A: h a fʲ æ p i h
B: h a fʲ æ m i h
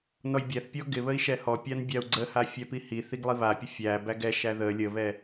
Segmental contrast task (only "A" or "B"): A